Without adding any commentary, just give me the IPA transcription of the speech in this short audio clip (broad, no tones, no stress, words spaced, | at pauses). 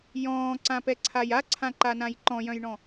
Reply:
jɔ̃ːǀãpɛǀʰaj aǀʰãǃanãj ǃɔ̃jœ̃jɳɔ̃